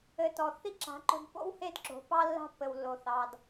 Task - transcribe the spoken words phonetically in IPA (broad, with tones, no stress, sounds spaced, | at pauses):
ɘ˨ t ɔ˨ θ i˦ ǁ a̤˨˦ ǃ o̤˧ d p o̰˦ w h e˦ d ǁ o̤˨˦ p ɑ˦ lː a̤˧ pː ɘ˨ w lː o˨ θ ɑ˨ d